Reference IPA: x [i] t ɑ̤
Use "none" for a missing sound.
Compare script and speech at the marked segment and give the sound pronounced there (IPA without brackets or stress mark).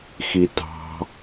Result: i